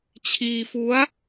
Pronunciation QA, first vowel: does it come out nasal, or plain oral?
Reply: oral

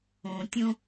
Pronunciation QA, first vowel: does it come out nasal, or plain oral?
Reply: nasal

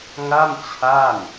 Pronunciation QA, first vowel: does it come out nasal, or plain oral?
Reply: oral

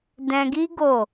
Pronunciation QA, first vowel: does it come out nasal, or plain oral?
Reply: nasal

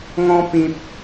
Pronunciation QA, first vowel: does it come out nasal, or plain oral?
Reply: nasal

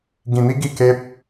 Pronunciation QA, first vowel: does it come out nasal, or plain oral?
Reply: nasal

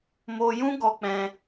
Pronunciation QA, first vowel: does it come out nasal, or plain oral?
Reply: oral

